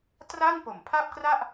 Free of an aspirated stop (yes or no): no